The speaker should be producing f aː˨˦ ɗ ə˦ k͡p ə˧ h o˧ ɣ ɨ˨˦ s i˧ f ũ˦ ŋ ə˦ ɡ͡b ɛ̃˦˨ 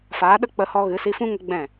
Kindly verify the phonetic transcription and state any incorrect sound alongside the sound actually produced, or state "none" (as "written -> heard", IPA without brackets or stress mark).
o˧ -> ɔ˧